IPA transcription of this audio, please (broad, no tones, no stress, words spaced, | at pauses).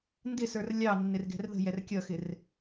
ndɪsə˞r lʲɑ nːɪrɡɛ̤rðə̤jɛr kʲʌxɪr